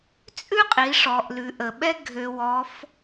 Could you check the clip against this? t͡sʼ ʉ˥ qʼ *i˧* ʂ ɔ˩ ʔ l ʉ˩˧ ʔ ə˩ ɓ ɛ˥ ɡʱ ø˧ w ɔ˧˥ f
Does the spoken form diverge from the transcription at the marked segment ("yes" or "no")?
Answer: yes